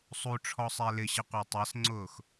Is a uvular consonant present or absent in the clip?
present